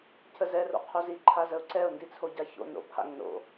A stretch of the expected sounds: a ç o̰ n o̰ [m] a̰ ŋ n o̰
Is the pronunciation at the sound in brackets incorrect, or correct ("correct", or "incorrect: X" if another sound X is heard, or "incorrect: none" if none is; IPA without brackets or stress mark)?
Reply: incorrect: pʰ